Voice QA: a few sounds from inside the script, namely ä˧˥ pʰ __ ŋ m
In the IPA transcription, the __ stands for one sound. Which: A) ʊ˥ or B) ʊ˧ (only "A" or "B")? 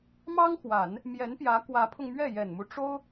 B